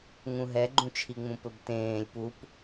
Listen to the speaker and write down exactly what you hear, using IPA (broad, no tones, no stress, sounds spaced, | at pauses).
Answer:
ŋ ũ ɦ ɛ ɡ͡ǃ ũ t͡ʃʰ i ŋ͡m ũ p ɵ b t ẽː lʲ p u p